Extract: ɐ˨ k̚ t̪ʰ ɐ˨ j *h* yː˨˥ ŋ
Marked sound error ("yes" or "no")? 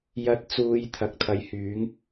no